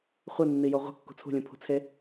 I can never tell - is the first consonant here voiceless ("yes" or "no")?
yes